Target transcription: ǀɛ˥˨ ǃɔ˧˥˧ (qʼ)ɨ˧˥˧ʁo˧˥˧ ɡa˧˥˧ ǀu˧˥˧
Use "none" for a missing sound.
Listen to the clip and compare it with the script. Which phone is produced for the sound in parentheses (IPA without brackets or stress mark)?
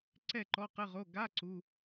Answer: q